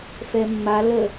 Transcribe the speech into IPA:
fɛmːa lə

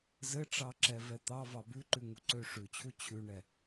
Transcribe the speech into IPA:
zɘʈ͡ʂɑǁɛ vɛt̪ɑvɑ bʉǃʉ ŋuǀøʂʉt͡ɕʰu t͡ɕʰʉɳɛ

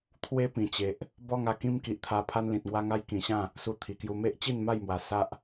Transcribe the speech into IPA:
t̪ʰwe˦pĩ˨˩t͡ɕe˨ʔ | bɔ˦ŋa˧ kĩ˦mki˨ʔt̪ʰa˧ pʰa˦nlĩ˨t̚ŋwa˦ŋa˦j kĩ˨˩ɕã˥˧ | su˧t̪ʰi˨˩kju˧ me˦ʔt͡ɕi˥˧nma˥˧jmwa˨˩ sa˦ʔ

